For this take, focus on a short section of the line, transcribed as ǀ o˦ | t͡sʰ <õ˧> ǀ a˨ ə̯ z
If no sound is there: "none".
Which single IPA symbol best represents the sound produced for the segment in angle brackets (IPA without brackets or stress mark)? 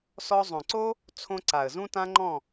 õ˧